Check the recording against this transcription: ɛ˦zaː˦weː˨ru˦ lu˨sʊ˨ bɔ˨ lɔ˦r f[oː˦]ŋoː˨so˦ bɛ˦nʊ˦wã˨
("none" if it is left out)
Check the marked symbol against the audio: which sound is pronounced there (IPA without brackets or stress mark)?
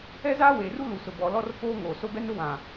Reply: oː˦